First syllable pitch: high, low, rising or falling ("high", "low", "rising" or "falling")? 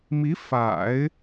rising